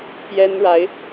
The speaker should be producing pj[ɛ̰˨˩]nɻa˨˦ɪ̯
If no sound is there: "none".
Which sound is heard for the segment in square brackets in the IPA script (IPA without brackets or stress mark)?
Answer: ɛ˦